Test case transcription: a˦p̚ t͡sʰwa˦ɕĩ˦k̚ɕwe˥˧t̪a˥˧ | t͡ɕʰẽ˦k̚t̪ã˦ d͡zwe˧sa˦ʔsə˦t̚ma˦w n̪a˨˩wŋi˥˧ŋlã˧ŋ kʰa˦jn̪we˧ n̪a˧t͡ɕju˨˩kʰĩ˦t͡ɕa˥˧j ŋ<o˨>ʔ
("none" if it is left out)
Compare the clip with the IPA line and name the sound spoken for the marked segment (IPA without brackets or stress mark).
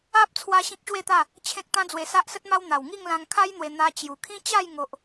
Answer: o˨